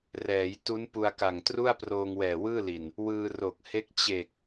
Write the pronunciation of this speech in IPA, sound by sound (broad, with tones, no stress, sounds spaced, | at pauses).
r ɛː˩˦ j t u˦˥ n p u˧ a̯ k a˨˩ ŋ t r u˥˩ a̯ p r oː˧ ŋ w ɛː˨˩ w ɯː˥˩ l i˨˩ n | w ɯː˧ r o˨˩ k̚ h e˦˥ k̚ t͡ɕ e˨˩ k̚